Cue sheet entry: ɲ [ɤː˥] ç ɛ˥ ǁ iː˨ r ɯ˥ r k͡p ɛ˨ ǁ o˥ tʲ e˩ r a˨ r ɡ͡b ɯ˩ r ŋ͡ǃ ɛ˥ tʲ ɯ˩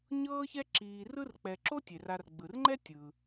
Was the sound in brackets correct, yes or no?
yes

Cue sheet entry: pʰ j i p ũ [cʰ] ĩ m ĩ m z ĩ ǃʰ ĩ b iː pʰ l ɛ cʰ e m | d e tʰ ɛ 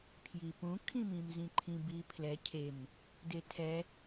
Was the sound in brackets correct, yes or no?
no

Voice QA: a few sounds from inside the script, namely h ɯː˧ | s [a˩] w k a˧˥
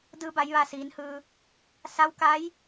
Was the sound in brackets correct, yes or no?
no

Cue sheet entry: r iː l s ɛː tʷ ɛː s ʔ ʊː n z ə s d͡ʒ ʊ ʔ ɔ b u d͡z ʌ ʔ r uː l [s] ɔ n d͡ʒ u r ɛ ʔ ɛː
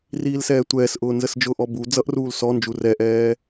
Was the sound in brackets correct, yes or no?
yes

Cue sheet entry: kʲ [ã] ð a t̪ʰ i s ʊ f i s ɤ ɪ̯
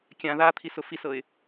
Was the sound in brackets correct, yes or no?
yes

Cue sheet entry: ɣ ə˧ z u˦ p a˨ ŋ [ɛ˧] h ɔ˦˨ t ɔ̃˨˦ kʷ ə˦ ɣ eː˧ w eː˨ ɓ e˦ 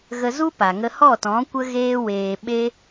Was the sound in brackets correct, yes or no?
no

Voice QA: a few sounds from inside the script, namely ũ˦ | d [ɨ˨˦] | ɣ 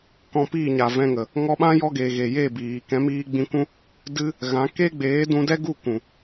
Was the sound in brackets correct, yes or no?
no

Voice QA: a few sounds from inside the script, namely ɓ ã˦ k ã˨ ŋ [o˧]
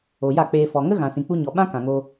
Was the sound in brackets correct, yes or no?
yes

